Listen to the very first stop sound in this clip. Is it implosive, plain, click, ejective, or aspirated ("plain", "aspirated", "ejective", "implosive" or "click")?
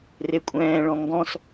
ejective